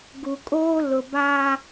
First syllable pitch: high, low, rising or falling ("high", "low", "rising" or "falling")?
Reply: low